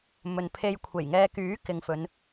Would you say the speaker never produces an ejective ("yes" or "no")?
yes